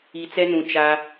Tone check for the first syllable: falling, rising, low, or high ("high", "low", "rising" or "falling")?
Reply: low